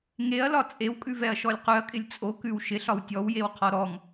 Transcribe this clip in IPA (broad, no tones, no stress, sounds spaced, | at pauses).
ŋ e ɐ̯ l ɒ t͡sʼ e w kʼ ʉ v ɛ ɐ̯ ʃ ɔ lʲ q ʉ ɐ̯ kʼ ɪ lʲ t͡sʼ o k ʉ w ʃ ɪ ɬ ɒ w tʲ ɔ w j e w qʰ ɔ ɾ ɔ ŋ